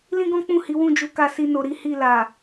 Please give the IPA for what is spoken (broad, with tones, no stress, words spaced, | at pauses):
lĩ˦ɡɔ̃˦k͡pũ˦˨hi˨˦ wũ˦˨d͡ʒu˨˦ka˧si˧ no˨ɾi˨˦ hi˦˨la˨